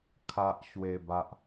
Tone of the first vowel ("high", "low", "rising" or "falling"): high